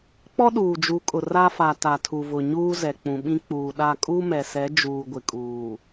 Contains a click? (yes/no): no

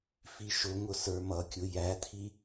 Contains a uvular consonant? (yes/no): no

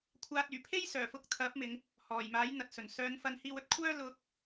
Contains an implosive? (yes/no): no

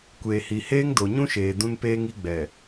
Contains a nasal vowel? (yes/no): yes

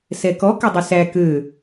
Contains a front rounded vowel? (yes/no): yes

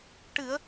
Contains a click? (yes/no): no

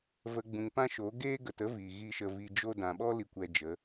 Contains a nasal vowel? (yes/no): yes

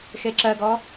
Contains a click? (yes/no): yes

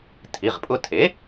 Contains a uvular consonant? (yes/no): yes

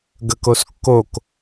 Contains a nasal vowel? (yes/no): no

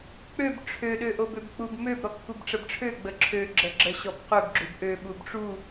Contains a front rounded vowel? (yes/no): yes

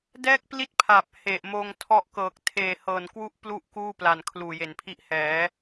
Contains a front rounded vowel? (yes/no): no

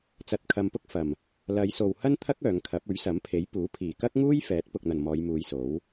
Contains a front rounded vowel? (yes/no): yes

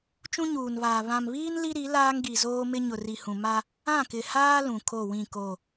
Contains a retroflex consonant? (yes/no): no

